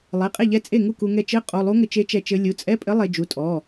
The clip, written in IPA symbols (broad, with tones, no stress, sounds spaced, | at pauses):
lˠ e˩˧˩ qʼ e˥˩ ʎ ɛ˧˥ t͡sʼ e˥˩ ŋ u˥˩ k u˧ ŋ ɛ˧ t͡ʃ ɘ˧˥˧ qʼ o˩˧˩ lˠ u˧˥ ŋ ɘ˧ t͡ʃ e˧˥ t͡ʃ ɛ˧ t͡ʃ ɘ˧˥ lʲ u˩˧˩ t͡sʼ ɛ˧˥˧ pʼ ɘ˧˥ lˠ e˧ d͡ʒ u˩˧˩ tʼ ɔ˩˧˩